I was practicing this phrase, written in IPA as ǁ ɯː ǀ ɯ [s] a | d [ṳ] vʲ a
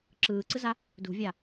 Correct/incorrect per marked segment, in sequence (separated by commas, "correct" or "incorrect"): incorrect, correct